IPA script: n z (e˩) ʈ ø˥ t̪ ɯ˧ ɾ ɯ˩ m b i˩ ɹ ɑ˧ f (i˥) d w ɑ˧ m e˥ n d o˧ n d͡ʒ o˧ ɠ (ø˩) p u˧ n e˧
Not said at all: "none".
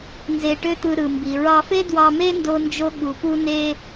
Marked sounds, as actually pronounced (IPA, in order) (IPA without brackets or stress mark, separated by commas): e˧, e˥, u˩